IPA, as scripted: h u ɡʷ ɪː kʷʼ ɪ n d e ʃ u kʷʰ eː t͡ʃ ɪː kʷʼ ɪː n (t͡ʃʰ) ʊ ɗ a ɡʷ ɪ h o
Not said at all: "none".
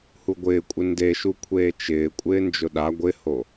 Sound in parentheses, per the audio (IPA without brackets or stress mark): d͡ʒ